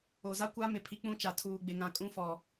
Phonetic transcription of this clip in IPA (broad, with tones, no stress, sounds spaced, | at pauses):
o˨ z a˦ kʷ a˦ m ɪ˨ pʰ i˨ k͡p ũ˦ t͡ʃ a˨ tʰ uː˨ ɡ͡b ɪ˨ ŋ ã˨ kʼ ũ˦ f ɔ˨